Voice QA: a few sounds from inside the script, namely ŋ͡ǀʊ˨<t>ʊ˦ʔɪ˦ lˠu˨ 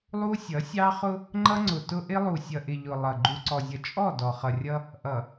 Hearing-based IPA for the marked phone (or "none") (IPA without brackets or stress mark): t